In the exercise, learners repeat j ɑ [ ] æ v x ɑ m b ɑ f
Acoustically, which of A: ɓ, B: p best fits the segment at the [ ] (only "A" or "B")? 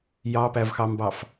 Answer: B